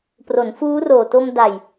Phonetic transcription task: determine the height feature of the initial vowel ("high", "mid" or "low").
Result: mid